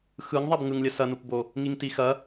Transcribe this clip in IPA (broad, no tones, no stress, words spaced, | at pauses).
xɯŋ ðˤabŋɯŋlʲɐ sɐnupbo | ŋiŋtixɐ